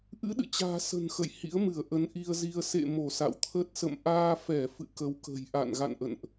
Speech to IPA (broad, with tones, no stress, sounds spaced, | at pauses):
ʔ ɨ̰˧˥ ɗ ɨ̰˧˨ t͡ɕ a̤ː˨˩ s ə̤˨˩ n x ə̰˧˨ j h ḭ˧˥ ə̯ m ɨ˧˩ ə̯ ʔ ə˨˦ n ʔ i˧ ə̯ z i˧ ə̯ s ḛ˧˨ m o˧˩ s a̰˧˨ w t̪ʰ ə˦˥ t̚ s ə̰˧˨ m ʔ aː˧ f ɛ˧˩ f ɨ̰˧˨ k ə˨˦ w k ə̤˨˩ j ʔ a̰˧˨ n ɣ a̰˧˨ n ʔ ə̰˧˨ n ʔ